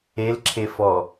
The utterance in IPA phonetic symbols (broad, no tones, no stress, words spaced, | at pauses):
elǁʰe fɔ